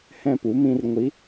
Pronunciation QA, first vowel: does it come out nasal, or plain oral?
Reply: nasal